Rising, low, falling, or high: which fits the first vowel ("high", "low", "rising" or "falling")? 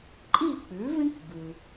falling